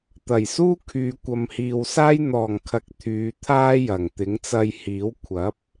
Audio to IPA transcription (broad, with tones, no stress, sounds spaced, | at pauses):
t̪ ɐ˨˩ j s uː˥ kʰ yː˨˧ kʷ ɐ˨ m h iː˨ w s aː˥ j n̪ ɔː˨˩ ŋ kʰ ɐ˨ k̚ t̪ʰ yː˨˧ t̪ʰ aː˥ j ɐ˨˩ ŋ t̪ ɪ˨˥ ŋ t͡s ɐ˧ j h iː˨˥ w kʷʰ ɐ˨˥ p̚